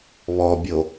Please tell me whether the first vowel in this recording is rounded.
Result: yes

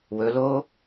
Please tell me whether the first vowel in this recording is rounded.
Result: yes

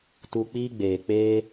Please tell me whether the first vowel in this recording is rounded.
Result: yes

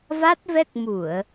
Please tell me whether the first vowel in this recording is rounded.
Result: no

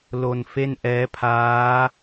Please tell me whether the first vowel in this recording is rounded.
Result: yes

